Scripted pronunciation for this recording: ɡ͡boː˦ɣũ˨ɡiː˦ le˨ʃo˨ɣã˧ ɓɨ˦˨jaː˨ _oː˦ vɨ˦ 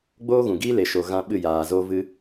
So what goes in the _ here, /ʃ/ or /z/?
z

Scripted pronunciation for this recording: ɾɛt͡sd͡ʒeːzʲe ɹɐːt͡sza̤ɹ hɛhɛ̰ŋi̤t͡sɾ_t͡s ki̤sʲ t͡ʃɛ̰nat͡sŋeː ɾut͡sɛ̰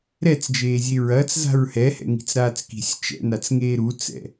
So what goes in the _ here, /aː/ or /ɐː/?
aː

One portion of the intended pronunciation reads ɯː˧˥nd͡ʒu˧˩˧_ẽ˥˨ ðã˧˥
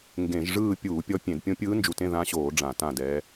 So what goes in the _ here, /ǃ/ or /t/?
t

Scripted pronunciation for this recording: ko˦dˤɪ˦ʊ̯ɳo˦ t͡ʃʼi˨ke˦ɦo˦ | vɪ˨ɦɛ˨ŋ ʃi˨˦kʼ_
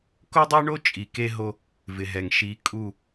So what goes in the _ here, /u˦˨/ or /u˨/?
u˦˨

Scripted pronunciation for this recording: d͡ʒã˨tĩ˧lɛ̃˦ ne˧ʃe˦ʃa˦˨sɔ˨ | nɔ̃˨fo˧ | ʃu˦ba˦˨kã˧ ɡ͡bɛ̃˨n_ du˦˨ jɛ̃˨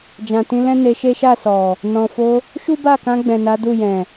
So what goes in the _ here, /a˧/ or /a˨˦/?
a˨˦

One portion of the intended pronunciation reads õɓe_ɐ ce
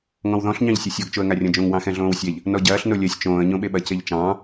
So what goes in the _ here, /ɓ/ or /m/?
ɓ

